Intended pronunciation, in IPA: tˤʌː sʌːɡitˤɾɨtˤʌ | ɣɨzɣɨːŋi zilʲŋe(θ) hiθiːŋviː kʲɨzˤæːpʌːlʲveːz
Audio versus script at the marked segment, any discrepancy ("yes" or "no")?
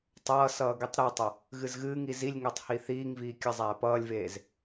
yes